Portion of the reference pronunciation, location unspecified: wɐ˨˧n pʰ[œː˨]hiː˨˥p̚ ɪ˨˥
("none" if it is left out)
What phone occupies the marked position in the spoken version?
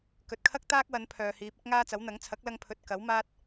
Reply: œː˨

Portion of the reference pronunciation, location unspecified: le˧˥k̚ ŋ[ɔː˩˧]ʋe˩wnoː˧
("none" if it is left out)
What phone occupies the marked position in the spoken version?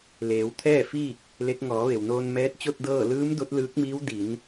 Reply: ɔː˩˧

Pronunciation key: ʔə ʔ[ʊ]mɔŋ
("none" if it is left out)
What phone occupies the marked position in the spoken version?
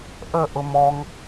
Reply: ʊ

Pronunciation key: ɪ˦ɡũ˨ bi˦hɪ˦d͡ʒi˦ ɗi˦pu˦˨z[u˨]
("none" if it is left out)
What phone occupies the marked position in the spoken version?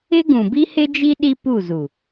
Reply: u˨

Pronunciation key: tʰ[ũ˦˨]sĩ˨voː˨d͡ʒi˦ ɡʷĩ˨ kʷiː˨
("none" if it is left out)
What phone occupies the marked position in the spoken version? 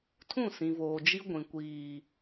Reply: ũ˦˨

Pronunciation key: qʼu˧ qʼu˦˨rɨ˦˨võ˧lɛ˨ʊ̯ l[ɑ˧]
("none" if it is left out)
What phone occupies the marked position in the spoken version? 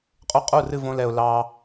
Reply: ɑ˧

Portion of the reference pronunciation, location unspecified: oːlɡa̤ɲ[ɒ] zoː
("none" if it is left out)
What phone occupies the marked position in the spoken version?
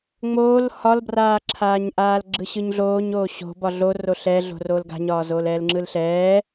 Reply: ɒː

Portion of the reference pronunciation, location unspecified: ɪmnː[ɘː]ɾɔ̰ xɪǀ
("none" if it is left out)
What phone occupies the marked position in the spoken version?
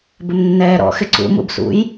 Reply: ɛː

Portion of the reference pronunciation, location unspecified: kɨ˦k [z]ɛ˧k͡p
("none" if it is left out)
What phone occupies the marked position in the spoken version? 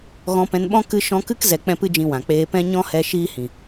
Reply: z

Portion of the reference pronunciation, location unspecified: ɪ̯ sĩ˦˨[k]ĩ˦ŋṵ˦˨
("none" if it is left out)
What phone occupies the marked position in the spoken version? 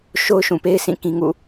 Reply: k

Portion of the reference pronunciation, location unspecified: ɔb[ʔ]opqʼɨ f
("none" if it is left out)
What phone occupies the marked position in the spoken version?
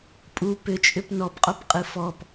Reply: qʼ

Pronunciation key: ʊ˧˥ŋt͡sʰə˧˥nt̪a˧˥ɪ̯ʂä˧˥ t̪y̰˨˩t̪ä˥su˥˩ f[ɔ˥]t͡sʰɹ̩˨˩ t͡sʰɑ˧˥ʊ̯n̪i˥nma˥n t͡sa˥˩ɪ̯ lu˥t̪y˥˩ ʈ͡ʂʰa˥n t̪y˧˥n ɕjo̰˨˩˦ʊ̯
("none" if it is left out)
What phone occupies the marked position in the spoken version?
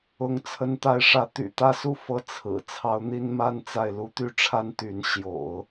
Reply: ɤ˥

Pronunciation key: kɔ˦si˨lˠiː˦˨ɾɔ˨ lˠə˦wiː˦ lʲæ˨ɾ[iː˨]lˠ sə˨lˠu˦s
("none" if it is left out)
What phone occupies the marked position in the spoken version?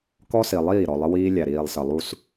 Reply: iː˨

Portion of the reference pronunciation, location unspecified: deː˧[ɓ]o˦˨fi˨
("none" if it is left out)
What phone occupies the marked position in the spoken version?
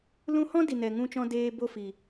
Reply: b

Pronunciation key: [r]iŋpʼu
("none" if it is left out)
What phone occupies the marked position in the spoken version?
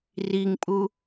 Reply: r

